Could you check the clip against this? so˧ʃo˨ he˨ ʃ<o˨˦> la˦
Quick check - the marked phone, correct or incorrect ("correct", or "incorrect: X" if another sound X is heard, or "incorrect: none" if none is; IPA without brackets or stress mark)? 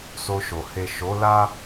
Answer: correct